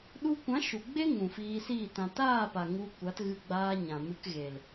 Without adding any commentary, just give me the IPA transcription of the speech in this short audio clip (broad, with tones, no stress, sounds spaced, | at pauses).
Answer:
ɗ u˧ kʷ ã˨˦ ʃ u˨ ɡ͡b e˦ ŋ ũ˨ f iː˧ s iː˦˨ t ã˨ t aː˦˨ p a˨ ŋ u˧ kʷ a˨˦ t ɣ ɨ˧ ɡ͡b aː˧ ɲ ã˨ m ɨ˧ k ɣ e˨ l